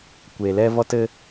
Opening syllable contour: low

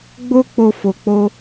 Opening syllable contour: high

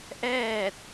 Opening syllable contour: falling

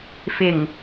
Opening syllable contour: low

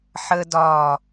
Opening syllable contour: high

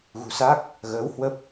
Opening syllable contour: low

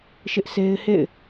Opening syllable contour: high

